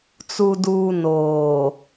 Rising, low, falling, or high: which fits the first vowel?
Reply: low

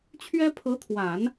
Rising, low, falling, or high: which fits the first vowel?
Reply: high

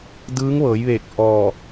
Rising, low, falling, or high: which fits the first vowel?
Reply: rising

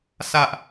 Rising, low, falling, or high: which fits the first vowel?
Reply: high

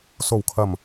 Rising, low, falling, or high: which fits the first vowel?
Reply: low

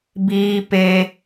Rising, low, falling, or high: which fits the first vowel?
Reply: high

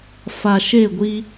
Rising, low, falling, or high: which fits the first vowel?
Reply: low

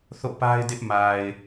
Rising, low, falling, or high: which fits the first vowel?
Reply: falling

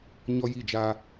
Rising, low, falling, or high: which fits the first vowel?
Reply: high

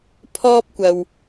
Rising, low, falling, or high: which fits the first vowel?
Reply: high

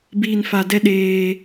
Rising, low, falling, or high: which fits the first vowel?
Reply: low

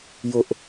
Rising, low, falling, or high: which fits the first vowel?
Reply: high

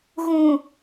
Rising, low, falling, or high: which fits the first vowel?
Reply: low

